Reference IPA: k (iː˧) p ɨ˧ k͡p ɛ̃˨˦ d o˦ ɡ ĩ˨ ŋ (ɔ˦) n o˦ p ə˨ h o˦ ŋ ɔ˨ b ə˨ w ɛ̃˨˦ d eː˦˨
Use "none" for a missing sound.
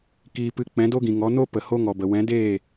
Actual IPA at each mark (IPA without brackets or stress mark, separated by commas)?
iː˧, ɔ˨˦